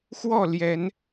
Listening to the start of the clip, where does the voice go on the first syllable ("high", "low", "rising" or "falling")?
falling